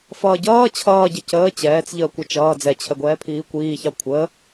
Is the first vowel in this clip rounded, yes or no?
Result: no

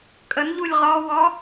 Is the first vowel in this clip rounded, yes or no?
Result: no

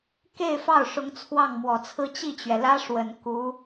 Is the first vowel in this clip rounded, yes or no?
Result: no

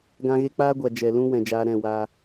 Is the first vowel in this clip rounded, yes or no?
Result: no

